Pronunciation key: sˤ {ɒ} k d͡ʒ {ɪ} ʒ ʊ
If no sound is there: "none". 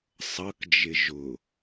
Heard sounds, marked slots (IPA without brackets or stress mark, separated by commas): ʌ, ɪ